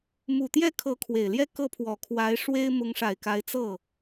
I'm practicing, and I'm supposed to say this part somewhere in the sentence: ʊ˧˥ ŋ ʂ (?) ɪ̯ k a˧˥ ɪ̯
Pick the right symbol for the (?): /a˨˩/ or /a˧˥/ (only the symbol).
a˨˩